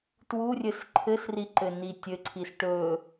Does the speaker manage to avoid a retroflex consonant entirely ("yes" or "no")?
no